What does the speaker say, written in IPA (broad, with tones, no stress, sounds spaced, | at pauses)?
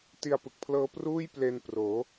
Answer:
t i˧ a̯ p ɯ˨˩ k̚ pʰ l ɤː˦˥ p r uː˥˩ j p l e˧ n p r oː˩˦